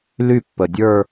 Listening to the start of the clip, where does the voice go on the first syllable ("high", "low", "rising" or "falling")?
falling